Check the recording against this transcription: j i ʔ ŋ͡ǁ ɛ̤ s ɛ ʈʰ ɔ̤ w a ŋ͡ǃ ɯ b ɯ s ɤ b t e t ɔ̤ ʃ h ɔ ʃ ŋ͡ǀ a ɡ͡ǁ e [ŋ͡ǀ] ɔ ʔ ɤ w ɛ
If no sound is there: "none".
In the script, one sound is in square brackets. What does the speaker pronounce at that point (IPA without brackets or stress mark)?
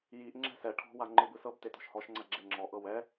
ŋ͡ǁ